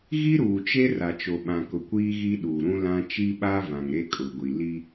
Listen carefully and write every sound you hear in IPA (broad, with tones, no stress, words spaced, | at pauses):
ɣi˦ɾuː˨t͡ʃe˦ ra˨t͡ʃo˨ɓã˨kʊ˨ kʷiː˦ɣi˦ ɗuː˨ɾũ˦lã˦ t͡ʃi˦ɓa˦ vã˨ŋɾe˦kʼʊ˨ɡʷi˨ li˦